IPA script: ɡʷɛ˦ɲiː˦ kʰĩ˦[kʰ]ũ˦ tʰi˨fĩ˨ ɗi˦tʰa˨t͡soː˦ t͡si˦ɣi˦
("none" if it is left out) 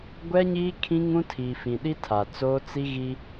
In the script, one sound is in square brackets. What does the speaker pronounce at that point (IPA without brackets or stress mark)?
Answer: ŋ